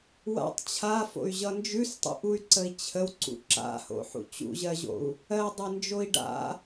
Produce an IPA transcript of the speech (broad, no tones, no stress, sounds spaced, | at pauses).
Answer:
w a̰ tˤ t͡ɕʰ a f o̰ y̯ ʑ ʌ n d͡ʒ ʉ s tˤ ṵ ʔ u y̯ ǀ ə i̯ t͡ɕʰ ə w ǀ ṵ ǁ a̰ h o̰ ħ ṵ t͡ɕ ṵ ʑ ɜ ʑ o̰ u̯ | ɜ dˤ e n d͡ʒ o i̯ ɖ a̰